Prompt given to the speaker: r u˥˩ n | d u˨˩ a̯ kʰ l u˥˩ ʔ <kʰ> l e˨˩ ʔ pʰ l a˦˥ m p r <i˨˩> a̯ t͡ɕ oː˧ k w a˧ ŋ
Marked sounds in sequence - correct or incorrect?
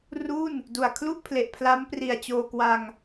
incorrect, correct

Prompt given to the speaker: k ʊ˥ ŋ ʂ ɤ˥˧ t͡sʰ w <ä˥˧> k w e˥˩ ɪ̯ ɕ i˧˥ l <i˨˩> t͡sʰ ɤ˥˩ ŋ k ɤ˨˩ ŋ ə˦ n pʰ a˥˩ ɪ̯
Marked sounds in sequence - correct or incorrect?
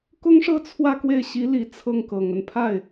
correct, correct

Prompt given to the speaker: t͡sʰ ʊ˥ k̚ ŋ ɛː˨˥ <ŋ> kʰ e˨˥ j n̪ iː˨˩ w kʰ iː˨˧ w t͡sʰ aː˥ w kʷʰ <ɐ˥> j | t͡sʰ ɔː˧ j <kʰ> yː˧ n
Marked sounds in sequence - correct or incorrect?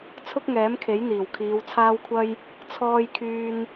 incorrect, correct, correct

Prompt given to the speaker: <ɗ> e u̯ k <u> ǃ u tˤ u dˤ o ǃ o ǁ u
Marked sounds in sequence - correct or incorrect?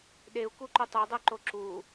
correct, correct

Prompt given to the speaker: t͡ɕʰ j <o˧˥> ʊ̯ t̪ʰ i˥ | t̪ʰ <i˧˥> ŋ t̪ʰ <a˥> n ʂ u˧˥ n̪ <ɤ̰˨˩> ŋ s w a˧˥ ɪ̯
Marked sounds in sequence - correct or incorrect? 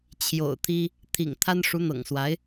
incorrect, incorrect, correct, correct

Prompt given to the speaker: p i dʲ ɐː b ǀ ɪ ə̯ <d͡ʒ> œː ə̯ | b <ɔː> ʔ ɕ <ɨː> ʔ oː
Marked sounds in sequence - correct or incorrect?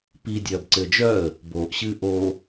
correct, incorrect, correct

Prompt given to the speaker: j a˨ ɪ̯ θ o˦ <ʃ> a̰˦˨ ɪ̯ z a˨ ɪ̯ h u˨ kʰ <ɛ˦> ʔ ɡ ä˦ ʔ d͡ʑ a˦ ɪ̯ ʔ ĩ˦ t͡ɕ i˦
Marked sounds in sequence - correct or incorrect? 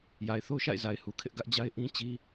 correct, incorrect

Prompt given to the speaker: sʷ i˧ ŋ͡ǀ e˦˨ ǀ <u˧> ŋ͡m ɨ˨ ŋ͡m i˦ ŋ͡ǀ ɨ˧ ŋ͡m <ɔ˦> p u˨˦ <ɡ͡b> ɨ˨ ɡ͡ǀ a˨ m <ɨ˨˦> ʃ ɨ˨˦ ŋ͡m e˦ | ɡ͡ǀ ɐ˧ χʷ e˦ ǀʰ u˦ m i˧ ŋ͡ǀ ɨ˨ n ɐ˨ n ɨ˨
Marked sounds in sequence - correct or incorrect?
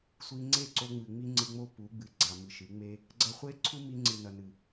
incorrect, incorrect, correct, incorrect

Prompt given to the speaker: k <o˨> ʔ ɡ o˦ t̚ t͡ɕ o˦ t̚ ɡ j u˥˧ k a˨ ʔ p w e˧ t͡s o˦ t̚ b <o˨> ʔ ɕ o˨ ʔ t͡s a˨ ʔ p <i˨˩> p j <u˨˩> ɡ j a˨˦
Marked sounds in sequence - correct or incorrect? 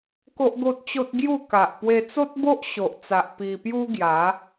incorrect, incorrect, incorrect, incorrect

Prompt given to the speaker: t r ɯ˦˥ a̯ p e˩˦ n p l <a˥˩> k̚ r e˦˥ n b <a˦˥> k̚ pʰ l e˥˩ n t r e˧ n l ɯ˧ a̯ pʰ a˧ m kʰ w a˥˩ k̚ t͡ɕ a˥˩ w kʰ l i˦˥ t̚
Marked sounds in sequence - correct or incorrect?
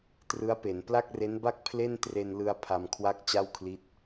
correct, incorrect

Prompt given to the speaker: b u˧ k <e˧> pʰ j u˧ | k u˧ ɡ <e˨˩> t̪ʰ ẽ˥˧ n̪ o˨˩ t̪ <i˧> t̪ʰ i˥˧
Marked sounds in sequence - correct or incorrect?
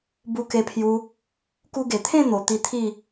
correct, correct, correct

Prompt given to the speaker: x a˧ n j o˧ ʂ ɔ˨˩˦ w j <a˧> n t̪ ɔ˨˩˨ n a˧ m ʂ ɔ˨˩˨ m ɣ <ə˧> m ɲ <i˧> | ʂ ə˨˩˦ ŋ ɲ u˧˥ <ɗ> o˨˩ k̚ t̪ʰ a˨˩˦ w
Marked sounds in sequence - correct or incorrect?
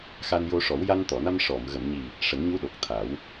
correct, incorrect, incorrect, correct

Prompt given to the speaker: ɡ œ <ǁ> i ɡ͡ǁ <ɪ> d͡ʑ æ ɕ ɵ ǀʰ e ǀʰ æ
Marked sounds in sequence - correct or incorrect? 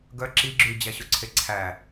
correct, incorrect

